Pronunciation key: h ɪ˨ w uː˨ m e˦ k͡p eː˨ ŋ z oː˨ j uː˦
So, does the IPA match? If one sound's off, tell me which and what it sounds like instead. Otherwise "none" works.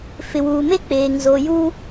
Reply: h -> f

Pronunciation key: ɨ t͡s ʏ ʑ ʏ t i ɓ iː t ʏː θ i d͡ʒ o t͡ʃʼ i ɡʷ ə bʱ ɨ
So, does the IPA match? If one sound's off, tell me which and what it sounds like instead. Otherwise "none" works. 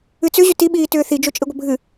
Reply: none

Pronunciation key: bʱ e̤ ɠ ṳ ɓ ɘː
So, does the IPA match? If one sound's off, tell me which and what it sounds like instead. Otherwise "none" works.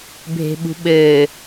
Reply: ɠ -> ɓ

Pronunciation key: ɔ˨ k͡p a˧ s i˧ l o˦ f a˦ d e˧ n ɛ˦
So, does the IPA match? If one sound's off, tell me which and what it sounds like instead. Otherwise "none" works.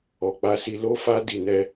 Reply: e˧ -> i˧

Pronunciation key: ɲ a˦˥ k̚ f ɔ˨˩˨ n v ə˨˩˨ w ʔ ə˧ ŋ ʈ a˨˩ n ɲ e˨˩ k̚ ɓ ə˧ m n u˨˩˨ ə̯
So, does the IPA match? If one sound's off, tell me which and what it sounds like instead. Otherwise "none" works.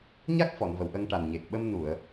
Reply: none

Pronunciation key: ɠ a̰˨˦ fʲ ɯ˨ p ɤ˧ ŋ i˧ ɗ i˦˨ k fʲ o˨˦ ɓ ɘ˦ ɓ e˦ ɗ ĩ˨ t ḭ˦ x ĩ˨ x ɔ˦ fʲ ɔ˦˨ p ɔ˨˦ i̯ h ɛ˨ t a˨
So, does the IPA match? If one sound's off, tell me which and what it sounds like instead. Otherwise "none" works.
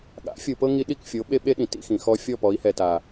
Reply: ɘ˦ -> e˦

